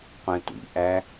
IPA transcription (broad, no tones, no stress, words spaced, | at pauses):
qʷɛ̃tʷḭʔæ